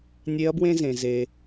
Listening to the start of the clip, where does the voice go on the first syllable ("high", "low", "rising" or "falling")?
rising